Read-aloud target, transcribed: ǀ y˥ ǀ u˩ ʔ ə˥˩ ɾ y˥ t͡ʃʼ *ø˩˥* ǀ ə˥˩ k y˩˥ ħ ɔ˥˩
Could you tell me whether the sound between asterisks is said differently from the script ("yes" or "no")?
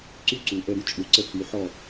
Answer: yes